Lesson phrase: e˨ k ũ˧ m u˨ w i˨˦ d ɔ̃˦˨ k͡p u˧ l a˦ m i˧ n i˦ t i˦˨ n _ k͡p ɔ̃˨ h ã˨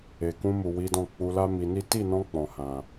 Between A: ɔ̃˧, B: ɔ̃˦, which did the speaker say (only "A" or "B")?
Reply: A